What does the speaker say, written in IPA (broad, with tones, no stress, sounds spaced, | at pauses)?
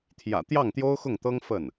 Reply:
t̪ʰ j ä̰˨˩ t̪ j ɑ˥˩ ŋ t̪ j o˥ ʊ̯ x ʊ˥˩ ŋ t̪ ɤ˥ ŋ f ə˥˩ n